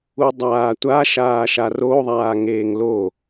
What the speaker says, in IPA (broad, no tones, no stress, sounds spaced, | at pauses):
u dˤ aː tʷ a ʃ aː ʃ a r o ðˤ aː ŋ eː ŋ l o